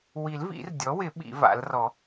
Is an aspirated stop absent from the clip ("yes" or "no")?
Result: yes